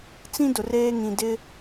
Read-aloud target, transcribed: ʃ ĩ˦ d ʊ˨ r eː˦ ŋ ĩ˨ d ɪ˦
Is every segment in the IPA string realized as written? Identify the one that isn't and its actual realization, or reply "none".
ʃ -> t͡s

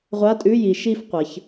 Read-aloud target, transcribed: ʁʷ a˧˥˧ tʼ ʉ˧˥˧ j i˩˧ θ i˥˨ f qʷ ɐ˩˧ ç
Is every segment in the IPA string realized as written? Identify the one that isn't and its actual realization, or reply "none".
θ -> ʃ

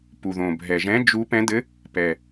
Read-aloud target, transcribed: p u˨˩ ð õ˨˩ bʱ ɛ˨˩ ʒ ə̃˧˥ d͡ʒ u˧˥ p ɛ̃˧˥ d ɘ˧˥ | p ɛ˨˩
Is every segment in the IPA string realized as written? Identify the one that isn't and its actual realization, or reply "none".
ə̃˧˥ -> ɛ̃˧˥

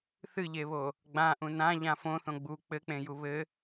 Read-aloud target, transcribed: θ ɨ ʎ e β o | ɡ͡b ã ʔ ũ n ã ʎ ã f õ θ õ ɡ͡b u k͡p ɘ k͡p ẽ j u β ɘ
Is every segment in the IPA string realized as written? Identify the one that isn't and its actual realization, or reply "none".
none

